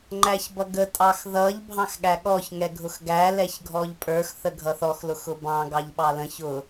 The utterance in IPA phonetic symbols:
ŋ͡ǃ æ ç b ʌ ɡ ə tʼ ɑ x ð ʌ ʎ bʱ ɑ̃ x ɠ æ ɠ ɔ ç ŋ ɛ ɡʱ ʊ x ɡ æ l ɛ ç ɡʱ ɔ ʎ pʼ ə˞ x θ ə ɡʱ ʌ θ ɔ x l ʊ x ʊ b ɑ̃ ɡ ɑ ʎ ɓ ɑ l ə̃ ç ʊ

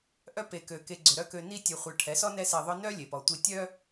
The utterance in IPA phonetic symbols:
ʔ œ˦ p e˨ k ø˨ k e˧ ɡ͡ǀ ʏ˨ ɾ œ˦ k ø˧ n i˦ tʲ e˧ χʷ œ˧ ʈʰ ɛ˨˦ s ɔ˦ n ɛ˧ s e˨ ðˤ œ˧ n œ˦ lʲ e˨ p ɔ˧ tʷ i˦ tʲ œ˦

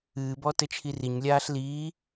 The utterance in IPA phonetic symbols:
ɨː b ɔ t ɘ t͡ʃʰ i r i ɲ lʲ aː ɬ l iː

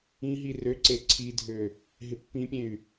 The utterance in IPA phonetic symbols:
ĩ ɦ i r ø ǀ e ǀʰ i dʱ ø | ɦ ɪ pː ĩ pʲ ẽ y̯

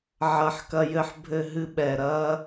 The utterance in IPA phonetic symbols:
ʕ ɐ˦ ħ k ɐ˦ j ɘ˦ ħ bʱ ɘ˦ ɦ ɨ˦ ɓ ɛ˨ ɾ ɐ˦

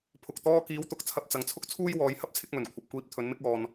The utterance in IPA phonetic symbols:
pʰ ʊ˨ k̚ t̪ ɔː˧ k iː˨˧ w t̪ ʊ˨ k̚ t͡sʰ ɐ˨ p̚ t͡s ɐ˨˧ ŋ t͡sʰ ʊ˥ k̚ t͡sʰ uː˥ j w ɔː˨˧ j h ɐ˥ p̚ t͡sʰ ɪ˧ k̚ m ɵ˨˩ n kʷʰ ɐ˨ p̚ kʷ iː˧ p̚ t̪ʰ ɵ˨˧ n m ɪ˥ k̚ ɔː˧ n

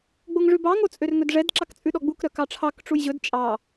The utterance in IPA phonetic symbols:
ɡ͡b o ŋ ʐ ʉ b ɑ ŋ o t͡sʼ ø r ŋ ɵ d ʐ ɛ d ǁ ɑ k t͡sʼ ʉ ɗ ɔ ɡ͡b u k ɾ œ k ɑ ʈ͡ʂʰ ɑ k ʈ͡ʂ u j ʑ ɵ d t͡ʃʼ ɑ

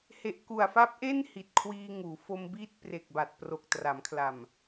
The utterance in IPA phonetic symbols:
h e˨˩ ʔ k u˨˩ a̯ f a˦˥ p̚ ʔ e˥˩ n h i˨˩ t̚ kʰ w iː˧ ŋ uː˩˦ f o˧ m b iː˥˩ t̚ p r e˨˩ k̚ b a˨˩ t̚ p r o˨˩ k̚ t r a˩˦ m kʰ l a˨˩ m

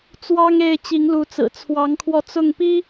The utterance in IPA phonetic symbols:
t͡s w ɑ˦ ŋ e˥˨ ɪ̯ t͡ɕ i˨˦ ŋ l u˨˦ t͡s ɹ̩˨˩ t͡sʰ w ɑ˨˦ ŋ kʰ w ɔ˧ t͡s ʊ˥˨ ŋ p i˦

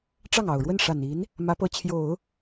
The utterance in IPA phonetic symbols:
ʈ͡ʂ ɑ˥˩ ŋ ɑ˨˩ ʊ̯ ɻ w ə˥˩ n ʂ a˨˩ n i˧˥ n | m ä˧˥ p ɤ˧˥ t͡ɕʰ j o˨˩˦ ʊ̯

